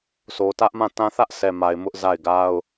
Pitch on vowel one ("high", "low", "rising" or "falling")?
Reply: low